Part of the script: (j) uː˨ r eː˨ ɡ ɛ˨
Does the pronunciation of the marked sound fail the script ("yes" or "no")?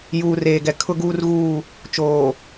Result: no